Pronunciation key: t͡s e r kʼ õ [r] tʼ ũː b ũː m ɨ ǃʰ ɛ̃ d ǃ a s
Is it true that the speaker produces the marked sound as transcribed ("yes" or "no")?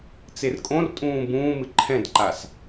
yes